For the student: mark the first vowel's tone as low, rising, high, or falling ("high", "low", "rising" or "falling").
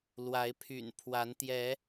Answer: rising